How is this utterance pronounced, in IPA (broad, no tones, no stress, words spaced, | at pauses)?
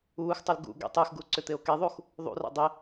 uːxtˤul ɡṵ ɡḛtˤɯxɡu ǀʏt̪eo̯keðˤux | ðˤṵra̰ dˤe